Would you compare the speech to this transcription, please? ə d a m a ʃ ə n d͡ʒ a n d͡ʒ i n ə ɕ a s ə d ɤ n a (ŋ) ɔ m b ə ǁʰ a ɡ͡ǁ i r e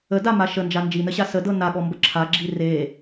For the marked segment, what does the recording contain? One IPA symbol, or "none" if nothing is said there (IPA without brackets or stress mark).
ɠ